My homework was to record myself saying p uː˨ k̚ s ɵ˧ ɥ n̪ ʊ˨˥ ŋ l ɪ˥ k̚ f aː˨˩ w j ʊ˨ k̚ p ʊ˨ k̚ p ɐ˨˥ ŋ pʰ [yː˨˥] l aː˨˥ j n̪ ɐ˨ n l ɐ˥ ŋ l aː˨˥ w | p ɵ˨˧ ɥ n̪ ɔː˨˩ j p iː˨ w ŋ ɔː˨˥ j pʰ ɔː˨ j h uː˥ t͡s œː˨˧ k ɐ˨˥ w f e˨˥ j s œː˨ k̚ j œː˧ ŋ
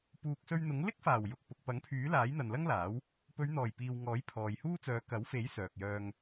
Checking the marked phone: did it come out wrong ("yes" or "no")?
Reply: no